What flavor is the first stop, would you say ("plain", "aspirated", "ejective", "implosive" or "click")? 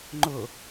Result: click